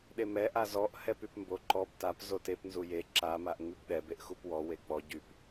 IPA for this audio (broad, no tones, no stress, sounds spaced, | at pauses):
ɗ e m ɛ ʔ a z ɔ ʔ h ɛ p y p m b o ǃ ɔ p t a p z o t e p n z u j e ǁ a m a ʔ ŋ͡m y p ɗ ɛ b e ʔ x u p w ɔ w e k͡p ɔ ɟ y p